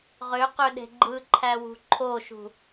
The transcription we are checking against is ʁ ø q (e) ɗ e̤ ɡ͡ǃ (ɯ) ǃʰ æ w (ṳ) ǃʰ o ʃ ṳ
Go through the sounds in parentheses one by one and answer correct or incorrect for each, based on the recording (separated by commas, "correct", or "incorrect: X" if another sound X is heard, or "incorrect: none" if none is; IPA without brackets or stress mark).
incorrect: ø, correct, correct